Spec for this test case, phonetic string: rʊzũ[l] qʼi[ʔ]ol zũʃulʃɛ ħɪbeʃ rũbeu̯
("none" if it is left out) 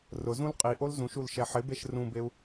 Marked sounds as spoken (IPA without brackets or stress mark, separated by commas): l, ʔ